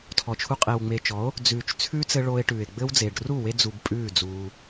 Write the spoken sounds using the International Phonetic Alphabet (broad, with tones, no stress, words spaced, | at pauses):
tʰɔ˨t͡ʃʰu˧ qʼe˨wŋ͡me˨t͡ʃɔ˨˦o̯ | d͡zʉː˨t͡ʃ t͡sʰʉː˦t͡sɘ˧ ɭo˧e̯ʈʉː˨e̯ɡ͡bɘ˦w d͡zeː˨ɖru˦˨we˧ d͡zu˧bpʼʉː˦˨d͡zuː˧